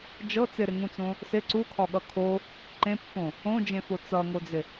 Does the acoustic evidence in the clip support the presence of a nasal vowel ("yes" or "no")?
yes